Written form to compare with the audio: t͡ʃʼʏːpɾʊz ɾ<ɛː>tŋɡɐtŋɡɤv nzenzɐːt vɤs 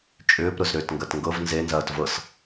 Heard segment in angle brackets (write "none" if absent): ʏː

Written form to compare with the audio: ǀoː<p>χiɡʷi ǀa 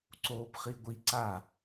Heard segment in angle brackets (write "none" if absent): p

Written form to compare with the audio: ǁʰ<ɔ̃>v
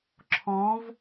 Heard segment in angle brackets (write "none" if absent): ɔ̃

